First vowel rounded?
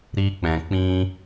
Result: no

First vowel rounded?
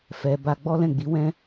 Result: no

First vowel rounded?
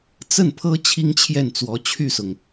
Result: no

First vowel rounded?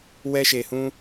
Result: no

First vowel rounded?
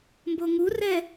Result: yes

